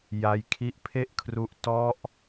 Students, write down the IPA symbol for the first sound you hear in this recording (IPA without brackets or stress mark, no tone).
j